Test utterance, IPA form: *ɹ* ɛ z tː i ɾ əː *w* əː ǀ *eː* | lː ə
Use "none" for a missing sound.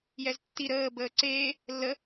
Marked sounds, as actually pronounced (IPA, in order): j, b, eː

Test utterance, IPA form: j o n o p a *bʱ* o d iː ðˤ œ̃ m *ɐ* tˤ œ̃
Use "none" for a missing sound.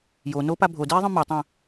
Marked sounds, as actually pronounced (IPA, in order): bʱ, a

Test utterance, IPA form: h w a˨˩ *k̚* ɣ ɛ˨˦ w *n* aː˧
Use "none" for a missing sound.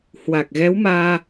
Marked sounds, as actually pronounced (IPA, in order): k̚, m

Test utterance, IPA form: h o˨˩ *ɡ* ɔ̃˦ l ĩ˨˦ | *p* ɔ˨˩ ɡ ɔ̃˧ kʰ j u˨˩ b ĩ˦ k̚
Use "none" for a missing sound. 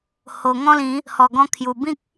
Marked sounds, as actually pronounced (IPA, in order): ŋ, h

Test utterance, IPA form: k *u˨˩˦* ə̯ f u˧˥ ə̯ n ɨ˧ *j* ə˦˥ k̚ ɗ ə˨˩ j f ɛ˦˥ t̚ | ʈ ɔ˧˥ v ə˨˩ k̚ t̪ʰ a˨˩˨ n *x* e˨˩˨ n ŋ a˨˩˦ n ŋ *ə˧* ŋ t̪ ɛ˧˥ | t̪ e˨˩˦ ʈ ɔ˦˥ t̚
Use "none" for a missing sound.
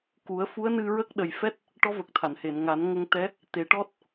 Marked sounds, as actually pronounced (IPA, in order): u˨˩˦, ɹ, h, ə˧

